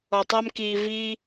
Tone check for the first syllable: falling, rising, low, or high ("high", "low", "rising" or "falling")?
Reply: low